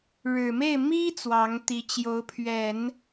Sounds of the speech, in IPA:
ɻ ɻ̩˨˩ m e˥˩ ɪ̯ m i˥ t͡s w ɑ˧˥ ŋ t̪ i˧˥ t͡ɕ j o˧˥ ʊ̯ pʰ ɥ ɛ˨˩˦ n

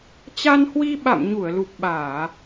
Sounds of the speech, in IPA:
t͡ɕ a˧ n h w i˧ ɓ a̰˧˨ m ɲ u˧˩ ə̯ l u˨˩ p̚ ɓ aː˧˩˨

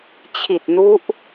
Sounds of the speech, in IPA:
t͡ɕʰ i˨˩ t̚ n u˦˥ ʔ

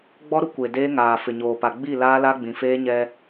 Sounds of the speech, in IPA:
ɡ͡b ɔ˦ ɾ ʊ˦ kʷ e˨ d eː˦ ŋ aː˨ f ɪ˨ ɲ oː˨ p a˨ ɡ͡b i˦˨ l aː˦ l a˦ ɡ͡b ĩ˨ f eː˦ ɲ ɛ˦

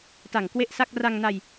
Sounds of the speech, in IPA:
t a˨˩ ŋ k w e˥˩ ʔ s a˥˩ k̚ r a˧ ŋ n a˧ j

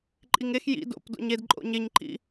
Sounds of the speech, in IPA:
ǃʼ i ŋ e x j ḭ d o̰ p d o̰ ɲ e d ǃʼ o̰ ɲ e ɲ ǃ ḭ

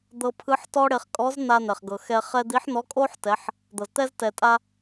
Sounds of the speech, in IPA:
d̪ ɤ˧ pʰ ɯ˧˥ ħ t ɔ˥ ɽ e˧ χ kʼ ɔ˧˥ z n̪ a˧ n̪ ɛ˩ χ ɡ ɤ˩ x ɛ˧ χ ɛ˥ d̪ i˧˥ ħ n̪ ɔ˧˥ kʼ o˥ ħ t ɛ˩˧ ħ | d̪ ɤ˩ z t̪ ɛ˥ z t ɛ˩ tʼ a˧

